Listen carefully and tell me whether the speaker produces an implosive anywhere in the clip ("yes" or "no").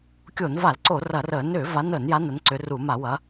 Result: no